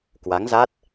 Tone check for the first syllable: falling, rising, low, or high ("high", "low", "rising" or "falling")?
rising